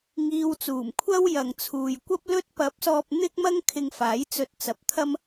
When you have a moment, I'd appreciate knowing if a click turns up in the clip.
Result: no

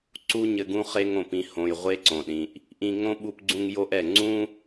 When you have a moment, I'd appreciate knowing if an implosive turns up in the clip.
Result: yes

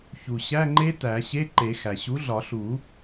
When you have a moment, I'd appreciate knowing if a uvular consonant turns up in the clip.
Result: no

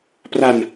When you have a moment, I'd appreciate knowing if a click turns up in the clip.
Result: no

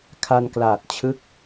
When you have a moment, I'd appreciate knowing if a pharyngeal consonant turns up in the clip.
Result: no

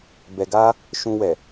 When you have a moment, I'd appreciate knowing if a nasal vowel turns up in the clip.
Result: yes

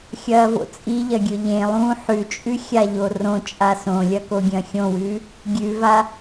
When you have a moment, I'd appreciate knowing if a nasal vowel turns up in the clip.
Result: yes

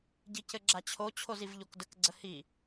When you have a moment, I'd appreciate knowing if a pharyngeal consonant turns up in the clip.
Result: no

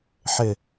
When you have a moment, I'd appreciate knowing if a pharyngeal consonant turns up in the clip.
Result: yes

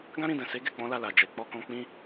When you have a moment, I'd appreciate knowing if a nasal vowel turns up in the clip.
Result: yes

